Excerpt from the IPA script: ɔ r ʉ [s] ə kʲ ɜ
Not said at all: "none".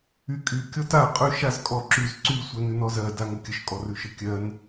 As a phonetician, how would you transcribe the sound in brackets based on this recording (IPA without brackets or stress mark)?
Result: ʃ